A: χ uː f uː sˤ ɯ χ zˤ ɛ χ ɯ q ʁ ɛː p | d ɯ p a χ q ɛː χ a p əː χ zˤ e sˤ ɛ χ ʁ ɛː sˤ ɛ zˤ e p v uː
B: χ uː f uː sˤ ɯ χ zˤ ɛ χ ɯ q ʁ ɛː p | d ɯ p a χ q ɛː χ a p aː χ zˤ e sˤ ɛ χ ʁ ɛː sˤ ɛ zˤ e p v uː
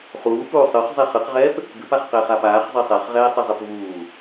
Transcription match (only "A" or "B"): B